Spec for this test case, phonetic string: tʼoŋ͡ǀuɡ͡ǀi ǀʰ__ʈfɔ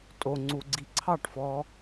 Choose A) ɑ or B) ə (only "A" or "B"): A